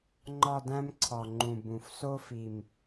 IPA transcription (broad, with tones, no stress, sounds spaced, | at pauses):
ŋ͡ǃ ɒ˦˨ d æ̃˦ m ǀʰ ɒ˨˩ ŋ͡ǃ ũ˨˩ b ũ˨˩ f s o˦ f i˨˩ m